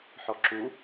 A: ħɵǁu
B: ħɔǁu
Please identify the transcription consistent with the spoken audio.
B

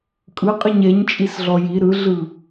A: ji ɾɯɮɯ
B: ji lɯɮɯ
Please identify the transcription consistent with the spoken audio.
A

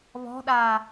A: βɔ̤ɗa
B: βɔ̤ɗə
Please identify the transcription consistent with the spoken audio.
A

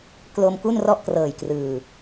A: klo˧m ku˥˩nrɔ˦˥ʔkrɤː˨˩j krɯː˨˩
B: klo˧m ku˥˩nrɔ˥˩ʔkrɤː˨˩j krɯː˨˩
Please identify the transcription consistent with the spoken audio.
B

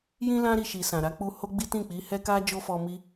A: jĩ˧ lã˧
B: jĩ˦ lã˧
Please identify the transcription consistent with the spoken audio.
B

